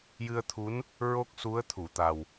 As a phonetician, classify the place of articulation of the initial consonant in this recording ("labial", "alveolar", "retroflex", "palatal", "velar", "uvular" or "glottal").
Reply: palatal